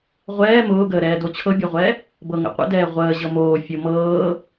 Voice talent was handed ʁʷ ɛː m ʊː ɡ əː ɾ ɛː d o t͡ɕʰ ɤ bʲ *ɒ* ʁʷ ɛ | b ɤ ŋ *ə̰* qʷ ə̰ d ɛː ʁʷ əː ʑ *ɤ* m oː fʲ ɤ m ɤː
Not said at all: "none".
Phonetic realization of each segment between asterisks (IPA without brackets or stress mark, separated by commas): ɒ, ə̰, ɤ